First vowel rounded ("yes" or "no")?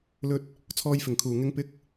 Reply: yes